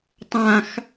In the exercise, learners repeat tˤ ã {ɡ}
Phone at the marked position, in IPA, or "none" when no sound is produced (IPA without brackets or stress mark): x